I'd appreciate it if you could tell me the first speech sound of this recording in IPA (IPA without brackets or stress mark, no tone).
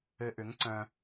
ɘ